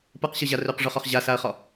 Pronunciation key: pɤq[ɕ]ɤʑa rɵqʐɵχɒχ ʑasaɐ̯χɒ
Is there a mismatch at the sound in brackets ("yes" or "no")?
no